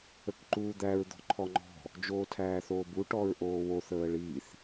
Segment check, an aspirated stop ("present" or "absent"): present